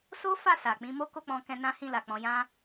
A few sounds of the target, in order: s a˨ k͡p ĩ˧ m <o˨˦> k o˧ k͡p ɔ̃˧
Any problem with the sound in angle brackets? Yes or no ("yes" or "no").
yes